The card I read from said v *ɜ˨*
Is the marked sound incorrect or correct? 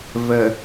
correct